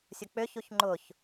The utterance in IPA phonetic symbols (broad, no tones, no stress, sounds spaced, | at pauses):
sʲ ʊ k͡p ʏ ç u ç ŋ͡ǃ ʊ ç